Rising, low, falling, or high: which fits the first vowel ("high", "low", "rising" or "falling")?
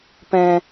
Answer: low